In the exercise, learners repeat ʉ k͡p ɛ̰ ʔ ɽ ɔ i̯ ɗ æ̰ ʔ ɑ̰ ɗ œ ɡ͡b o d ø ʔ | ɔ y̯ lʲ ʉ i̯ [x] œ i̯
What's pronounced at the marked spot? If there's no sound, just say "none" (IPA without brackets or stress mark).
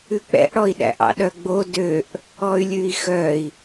x